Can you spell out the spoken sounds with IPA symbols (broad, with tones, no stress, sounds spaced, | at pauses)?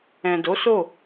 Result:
ɛ̃˨ d o˨˦ s o˦˨